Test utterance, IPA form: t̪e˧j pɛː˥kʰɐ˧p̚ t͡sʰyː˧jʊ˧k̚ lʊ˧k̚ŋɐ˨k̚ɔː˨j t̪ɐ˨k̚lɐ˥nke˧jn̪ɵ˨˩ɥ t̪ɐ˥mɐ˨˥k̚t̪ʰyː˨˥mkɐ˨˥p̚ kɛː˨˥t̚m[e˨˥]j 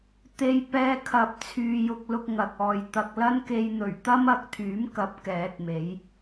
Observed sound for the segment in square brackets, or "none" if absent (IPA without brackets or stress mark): e˨˥